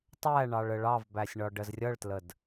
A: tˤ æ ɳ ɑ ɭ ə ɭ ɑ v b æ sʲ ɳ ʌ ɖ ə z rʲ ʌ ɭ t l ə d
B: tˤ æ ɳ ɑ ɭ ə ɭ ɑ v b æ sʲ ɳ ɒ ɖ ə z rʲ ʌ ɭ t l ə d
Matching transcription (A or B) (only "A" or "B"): B